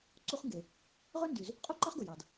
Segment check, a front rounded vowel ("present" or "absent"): present